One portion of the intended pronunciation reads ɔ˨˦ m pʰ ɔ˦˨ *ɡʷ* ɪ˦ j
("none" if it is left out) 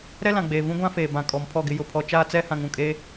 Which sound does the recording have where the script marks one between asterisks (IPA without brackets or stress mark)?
ɡ